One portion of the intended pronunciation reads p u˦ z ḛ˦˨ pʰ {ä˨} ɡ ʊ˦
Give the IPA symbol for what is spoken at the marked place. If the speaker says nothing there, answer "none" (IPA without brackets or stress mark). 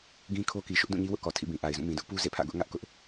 ä̰˦˨